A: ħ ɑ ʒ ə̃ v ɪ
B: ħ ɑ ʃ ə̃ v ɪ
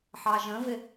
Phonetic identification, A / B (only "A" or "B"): A